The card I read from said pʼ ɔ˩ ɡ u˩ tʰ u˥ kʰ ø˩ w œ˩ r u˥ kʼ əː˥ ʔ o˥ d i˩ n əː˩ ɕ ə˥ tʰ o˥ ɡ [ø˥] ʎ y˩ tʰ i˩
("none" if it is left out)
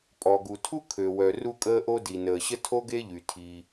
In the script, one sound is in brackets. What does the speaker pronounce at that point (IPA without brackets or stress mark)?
e˥